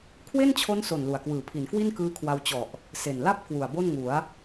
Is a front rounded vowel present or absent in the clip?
absent